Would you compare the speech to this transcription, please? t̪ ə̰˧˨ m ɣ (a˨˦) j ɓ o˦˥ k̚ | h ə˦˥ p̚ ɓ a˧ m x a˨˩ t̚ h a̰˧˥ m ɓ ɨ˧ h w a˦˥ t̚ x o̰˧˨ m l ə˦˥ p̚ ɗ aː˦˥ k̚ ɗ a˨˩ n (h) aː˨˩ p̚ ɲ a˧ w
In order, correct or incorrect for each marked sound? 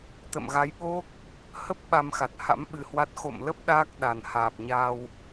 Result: correct, correct

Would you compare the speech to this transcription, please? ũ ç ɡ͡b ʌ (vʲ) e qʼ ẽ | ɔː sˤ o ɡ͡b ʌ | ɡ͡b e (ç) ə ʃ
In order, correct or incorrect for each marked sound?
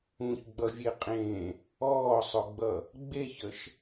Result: correct, correct

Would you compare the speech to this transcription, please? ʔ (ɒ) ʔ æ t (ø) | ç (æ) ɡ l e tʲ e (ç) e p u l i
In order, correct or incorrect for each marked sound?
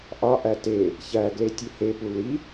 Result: correct, incorrect: e, correct, incorrect: h

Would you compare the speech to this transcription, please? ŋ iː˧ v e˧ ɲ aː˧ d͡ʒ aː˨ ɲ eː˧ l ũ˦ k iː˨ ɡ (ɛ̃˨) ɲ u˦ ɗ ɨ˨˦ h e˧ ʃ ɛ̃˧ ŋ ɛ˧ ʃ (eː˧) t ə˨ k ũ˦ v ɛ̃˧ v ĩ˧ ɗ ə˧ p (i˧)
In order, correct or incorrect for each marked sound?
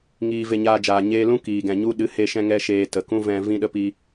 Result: correct, correct, correct

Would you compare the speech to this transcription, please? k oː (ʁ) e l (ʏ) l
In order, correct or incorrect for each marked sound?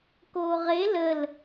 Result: correct, incorrect: ə

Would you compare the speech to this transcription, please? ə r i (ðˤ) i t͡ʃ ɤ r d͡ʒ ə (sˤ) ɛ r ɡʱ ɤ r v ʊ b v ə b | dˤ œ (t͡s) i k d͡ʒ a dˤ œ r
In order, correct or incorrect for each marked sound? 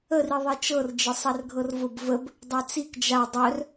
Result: correct, correct, correct

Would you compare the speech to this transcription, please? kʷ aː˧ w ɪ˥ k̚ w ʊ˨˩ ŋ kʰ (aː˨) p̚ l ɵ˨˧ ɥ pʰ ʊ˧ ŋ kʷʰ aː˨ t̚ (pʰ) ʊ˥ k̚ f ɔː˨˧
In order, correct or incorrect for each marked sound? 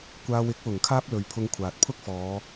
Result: incorrect: aː˥, correct

